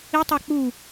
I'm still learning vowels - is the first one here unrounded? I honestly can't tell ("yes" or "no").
yes